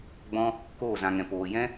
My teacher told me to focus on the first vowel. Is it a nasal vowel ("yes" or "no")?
yes